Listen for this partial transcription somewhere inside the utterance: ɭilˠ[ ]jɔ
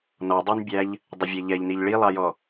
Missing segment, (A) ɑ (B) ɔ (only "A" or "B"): A